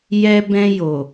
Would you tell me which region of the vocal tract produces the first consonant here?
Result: palate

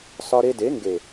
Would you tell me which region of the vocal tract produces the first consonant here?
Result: tongue tip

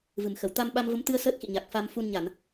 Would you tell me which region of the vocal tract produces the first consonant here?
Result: lips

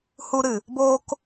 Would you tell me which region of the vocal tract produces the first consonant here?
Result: throat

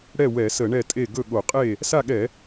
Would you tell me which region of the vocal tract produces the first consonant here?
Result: retroflex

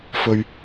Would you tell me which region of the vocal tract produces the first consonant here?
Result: lips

